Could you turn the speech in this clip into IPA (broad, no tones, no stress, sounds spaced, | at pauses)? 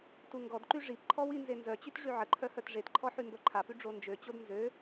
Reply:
t u ŋ ɡ ɔ d ǃ y ʐ i p ǃʰ ɔ w i n z e n z œ t͡ɕ y t ʐ y ʕ ə ǃʰ œ h œ t ʐ e t ǃʰ ɔ ħ y m b œ ǃʰ a p y ɖ͡ʐ o n d͡ʒ ø t͡ɕ o d n z ø